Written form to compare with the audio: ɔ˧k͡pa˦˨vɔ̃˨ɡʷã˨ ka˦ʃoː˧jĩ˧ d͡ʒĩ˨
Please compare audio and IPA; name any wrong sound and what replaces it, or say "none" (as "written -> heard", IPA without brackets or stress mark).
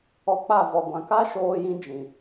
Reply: ɔ̃˨ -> ɔ˨